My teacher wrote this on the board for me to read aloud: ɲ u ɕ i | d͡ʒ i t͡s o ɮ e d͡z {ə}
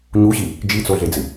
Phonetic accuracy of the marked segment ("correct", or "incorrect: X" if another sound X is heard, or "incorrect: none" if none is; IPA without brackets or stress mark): incorrect: ɨ